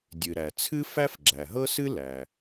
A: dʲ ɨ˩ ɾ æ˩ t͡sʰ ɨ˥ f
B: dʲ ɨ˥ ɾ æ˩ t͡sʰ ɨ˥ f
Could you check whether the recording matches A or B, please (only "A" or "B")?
A